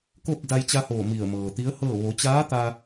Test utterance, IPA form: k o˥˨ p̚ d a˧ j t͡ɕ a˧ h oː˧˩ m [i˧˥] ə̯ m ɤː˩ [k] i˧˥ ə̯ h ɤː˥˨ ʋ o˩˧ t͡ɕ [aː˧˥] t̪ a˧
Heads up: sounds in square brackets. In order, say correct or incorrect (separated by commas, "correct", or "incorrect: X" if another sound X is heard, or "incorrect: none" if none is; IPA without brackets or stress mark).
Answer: incorrect: i˧˩, incorrect: t̪, correct